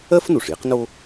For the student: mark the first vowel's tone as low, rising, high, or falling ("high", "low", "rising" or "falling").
high